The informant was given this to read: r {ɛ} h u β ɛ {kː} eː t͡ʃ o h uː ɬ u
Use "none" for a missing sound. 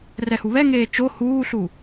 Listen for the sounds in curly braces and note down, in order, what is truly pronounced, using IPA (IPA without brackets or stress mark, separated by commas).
ɛ, ŋ